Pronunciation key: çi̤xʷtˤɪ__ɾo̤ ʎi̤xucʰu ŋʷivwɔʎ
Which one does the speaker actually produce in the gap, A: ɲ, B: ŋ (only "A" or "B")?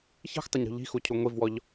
A